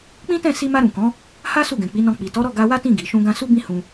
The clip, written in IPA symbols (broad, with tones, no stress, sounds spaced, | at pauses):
k͡p ĩ˦ t ɛ̃˦˨ s i˧ m a˧ ɾ ũ˨ k ɔ̃˨˦ | h a˦ s u˦˨ ɡ ɛ̃˨ k͡p i˨˦ n ɔ̃˧ k͡p i˨ t ɔ˨˦ ɾ ɔ˦˨ ɡ a˧ w a˦ t ĩ˦˨ ɡ i˨ ʃ ũ˧ ɡ ã˧ s u˦ b ĩ˦ h ũ˦